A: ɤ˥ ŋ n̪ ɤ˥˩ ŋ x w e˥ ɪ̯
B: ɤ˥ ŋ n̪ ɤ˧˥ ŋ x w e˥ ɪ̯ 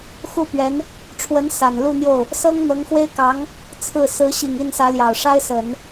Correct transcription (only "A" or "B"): B